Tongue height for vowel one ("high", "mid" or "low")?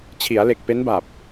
high